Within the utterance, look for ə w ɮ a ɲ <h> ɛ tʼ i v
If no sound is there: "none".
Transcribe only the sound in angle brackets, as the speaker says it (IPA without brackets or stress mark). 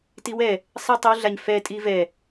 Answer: f